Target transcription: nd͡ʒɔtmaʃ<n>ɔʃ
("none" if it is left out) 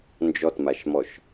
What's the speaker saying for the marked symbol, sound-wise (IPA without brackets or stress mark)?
m